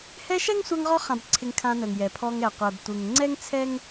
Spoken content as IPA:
h ɛ˦ ʃ ɛ˥ ŋ sʷ a˦ ŋ ʁ ɔ˦ χ ã˨ b ǀʰ ɪ˨ ŋ kʰ ã˨ n ə˩ ŋ j ɛ˩ pʰ ɔ˨ ŋ ɛ˩ qʷ ɛ˩ b tʷ ɯ˩ ŋ ŋ͡ǀ ɛ˥ ŋ t͡sʰ ɛ˥ ŋ

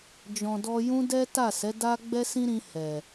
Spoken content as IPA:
d͡ʒ ɔ̃˨ d ɔ˧ j ũ˦ d ɛ˦ t a˦˨ s ɛ˨˦ d a˦ ɡ͡b ɛ˦ s ĩ˦ ɾ ĩ˧ h ɛ˨

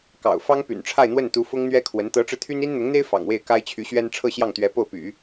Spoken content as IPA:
k ɑ̰˨˩ ʊ̯ f ɑ˥ ŋ p y̰˨˩ n ʈ͡ʂʰ a˥˧ ɪ̯ n̪ w ə˥˩ n t̪ u˧˥ f ʊ˥ ŋ n̪ ɥ ɛ˥ kʰ w ə˧˥ n t̪ ɤ˧˥ ʈ͡ʂ ɻ̩˧ t̪ʰ y˥ n i˥ n n̪ ʊ˧˥ ŋ n̪ e˥ ɪ̯ f ɑ̰˨˩ ŋ w e˥˩ ɪ̯ k a˥ ɪ̯ t͡ɕʰ y˧˥ ɕ ɥ ɛ˥ n ʈ͡ʂʰ ɤ˥˧ ɕ j ɑ˥˩ ŋ t̪ ɥ ɛ˧˥ p o˥˩ ʊ̯ p y̰˨˩˦

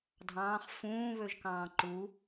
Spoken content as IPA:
dʱ ɑ̃ː χ f ũː β ø ʒ k ɑ̃ː ǃ u

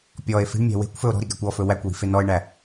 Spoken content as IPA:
pʲ ɔ e̯ f i̤ ɳ mʲ æ̤ w e̤ kʷ f ɵ o̯ ɾ ɔ̤ ɾ i ɡ æ kʷ ɔ f ɵ w æ kʷ w i̤ f e n ɔ e̯ ɳ æ

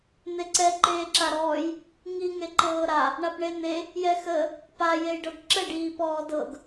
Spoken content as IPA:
n̪ e ǀ ɛ ǃ eː ǁ a ɾ ɔː j | ŋ i ŋ e ǃ ɤː ɾ a | ɳ a p ɳ e n̪ e | j ɛ x ə | p a j e j ɖ ɤ ɡ ǁ ə ɖ iː p ɔː d ɤ ɡ

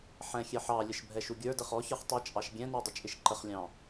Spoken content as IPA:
ħ ɛ̃ xʲ ɛ ħ ɑ lʲ ə ʃ bʱ ɛ ʃ u ɡʲ ə˞ d ə χ ɔ ç ə˞ χ tˤ ɛ t͡ʃʼ ɑ ʃ ɡʲ ɛ̃ n ə˞ dˤ ə t͡ʃʼ ɪ ʃ ǃ ə χ lʲ ɑ̃

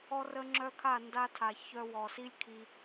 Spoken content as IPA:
ɔ˦ r ə˦ ŋ͡ǁ œ˦ kʰ a˦˨ n d a˧ tʰ a˨ ç œ˧ w ɔ˨ s i˦ lʲ kʰ i˧

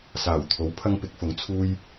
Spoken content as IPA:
s aː˨˩ w t̪ʰ o˨˥ w pʰ ɐ˥ ŋ p ɪ˨˥ k̚ f ʊ˨˥ ŋ t͡sʰ uː˥ j

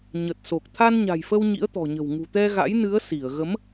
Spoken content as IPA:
ɲ ə˨˩ t̚ s o˨˩ k̚ t̪ʰ a˧ n ɲ a̤˨˩ j f ə˧ w ɲ ḭ˧˥ ə̯ t̪ ɔ̤˨˩ ɲ ə̤˨˩ w ŋ ṳ˨˩ t̪ ɛ˧ ɣ a̰˧˥ j n ɨ˨˦ ə̯ s i˧˩ ə̯ ɣ ə˨˦ m

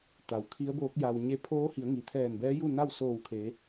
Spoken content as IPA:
t̪ a˩ w kʰ i˧˥ ə̯ b oː˧˥ k̚ j a˧ w ɲ e˧ pʰ oː˧˥ h i˩˧ ə̯ ŋ i˩ t̪ʰ ɛː˧˩ n b ɛː˧˥ j u˥˨ n a˥˨ w s oː˧˩ w kʰ e˩˧

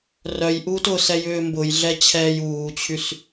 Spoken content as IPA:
r œ j ʔ uː t ʊ s ɛ j ʏː m b ʊ j ɮ ɛ t͡ɕʰ ɛː j uː t͡ɕʰ y s

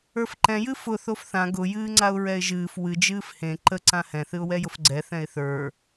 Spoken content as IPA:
ə˞ f ǃ ɛ̃ j ɨ f ʊ θ o f θ ã ɡ ʊ j ɨː ŋ͡ǀ a ʊ̯ ɹ ɛ ɪ̯ ʒ ɨː f w ɨ d͡ʒ ɨː f h ẽ ǃ ə ǀ ã h ɛ̃ θ ɨ ʊ̯ w ɛ j ʊ f ɡ͡ǀ ɛ θ ɛ̃ ɪ̯ θ ə˞

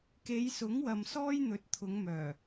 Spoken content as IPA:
k e˨˧ j s ʊ˨˥ ŋ w ɐ˨ m s ɔː˥ j n̪ ɵ˨˥ t̚ t̪ʰ ʊ˨˧ ŋ m œː˨˩

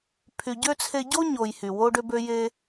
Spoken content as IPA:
pʰ y˨ ɟ ø˥ t͡sʰ e˦ ɟ o˥ ɲ o˨ j h y˩ w o˦ ɖ ø˦ b ø˦ j e˦

